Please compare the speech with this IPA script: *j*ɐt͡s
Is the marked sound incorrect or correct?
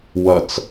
incorrect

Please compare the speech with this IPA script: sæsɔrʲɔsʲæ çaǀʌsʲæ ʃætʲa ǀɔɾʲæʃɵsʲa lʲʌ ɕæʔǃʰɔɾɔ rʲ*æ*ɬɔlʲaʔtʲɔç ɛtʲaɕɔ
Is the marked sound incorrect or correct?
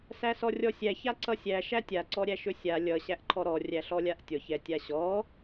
correct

